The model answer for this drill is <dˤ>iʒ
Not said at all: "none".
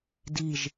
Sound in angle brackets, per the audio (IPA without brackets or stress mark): d